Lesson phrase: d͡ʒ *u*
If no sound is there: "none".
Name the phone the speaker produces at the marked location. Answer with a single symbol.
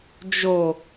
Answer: o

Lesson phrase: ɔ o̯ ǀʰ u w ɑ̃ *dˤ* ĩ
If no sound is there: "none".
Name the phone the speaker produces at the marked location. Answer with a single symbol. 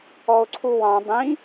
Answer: dˤ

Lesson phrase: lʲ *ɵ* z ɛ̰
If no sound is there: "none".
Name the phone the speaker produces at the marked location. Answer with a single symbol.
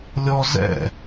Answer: ɔ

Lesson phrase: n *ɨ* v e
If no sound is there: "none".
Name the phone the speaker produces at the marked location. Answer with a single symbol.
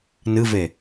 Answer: ɨ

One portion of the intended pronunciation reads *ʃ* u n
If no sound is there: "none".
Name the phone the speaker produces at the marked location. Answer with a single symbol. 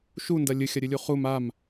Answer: ʃ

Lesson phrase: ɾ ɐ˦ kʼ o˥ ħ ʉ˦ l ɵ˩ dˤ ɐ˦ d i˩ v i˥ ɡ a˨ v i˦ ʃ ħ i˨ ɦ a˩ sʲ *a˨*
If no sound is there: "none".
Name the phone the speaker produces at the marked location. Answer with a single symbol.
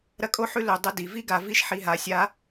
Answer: a˦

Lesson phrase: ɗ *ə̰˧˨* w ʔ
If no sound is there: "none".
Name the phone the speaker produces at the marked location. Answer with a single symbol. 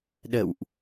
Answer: ə̰˧˨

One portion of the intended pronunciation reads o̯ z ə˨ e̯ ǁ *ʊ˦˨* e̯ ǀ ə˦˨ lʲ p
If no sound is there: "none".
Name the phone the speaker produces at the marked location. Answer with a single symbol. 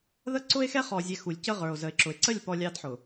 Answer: ʊ˨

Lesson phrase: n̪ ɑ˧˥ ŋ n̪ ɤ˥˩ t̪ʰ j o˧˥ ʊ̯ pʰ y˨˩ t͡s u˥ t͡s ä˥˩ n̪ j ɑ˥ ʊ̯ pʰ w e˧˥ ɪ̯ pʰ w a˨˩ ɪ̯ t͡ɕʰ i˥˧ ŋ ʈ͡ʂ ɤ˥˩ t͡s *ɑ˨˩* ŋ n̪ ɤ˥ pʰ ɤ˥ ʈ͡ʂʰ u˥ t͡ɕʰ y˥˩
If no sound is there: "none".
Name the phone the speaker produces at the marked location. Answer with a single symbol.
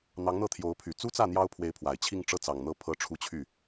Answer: ɑ˨˩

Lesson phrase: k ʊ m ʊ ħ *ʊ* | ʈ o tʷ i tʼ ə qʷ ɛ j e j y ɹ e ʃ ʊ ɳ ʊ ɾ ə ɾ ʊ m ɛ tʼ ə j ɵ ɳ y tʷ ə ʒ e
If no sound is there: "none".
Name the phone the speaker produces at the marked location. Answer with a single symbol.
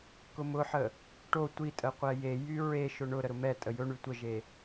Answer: ə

